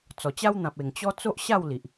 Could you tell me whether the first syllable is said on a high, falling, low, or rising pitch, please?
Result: low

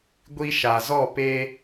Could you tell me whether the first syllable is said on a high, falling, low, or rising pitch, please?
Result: high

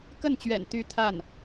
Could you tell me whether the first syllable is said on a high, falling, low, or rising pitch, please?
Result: falling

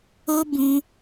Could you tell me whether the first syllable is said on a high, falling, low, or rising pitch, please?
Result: high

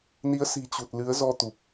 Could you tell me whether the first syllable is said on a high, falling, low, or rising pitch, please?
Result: rising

